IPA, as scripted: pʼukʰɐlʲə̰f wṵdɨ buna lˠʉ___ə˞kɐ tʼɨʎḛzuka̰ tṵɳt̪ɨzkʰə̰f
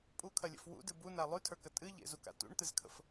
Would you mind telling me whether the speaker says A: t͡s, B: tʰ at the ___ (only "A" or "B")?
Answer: B